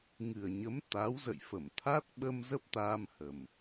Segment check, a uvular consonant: absent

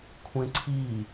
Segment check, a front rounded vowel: absent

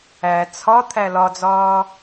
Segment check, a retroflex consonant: absent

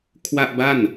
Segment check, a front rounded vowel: absent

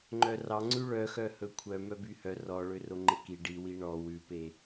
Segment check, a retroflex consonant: present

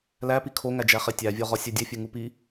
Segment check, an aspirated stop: present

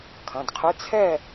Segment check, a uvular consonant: present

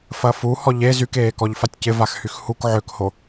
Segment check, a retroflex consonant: absent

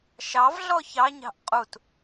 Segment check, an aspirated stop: absent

